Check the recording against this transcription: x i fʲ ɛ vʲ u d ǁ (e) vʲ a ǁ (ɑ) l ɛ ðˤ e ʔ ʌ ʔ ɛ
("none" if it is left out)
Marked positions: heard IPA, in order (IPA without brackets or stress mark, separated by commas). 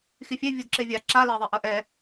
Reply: e, a